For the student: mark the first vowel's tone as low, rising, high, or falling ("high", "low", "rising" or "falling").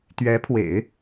rising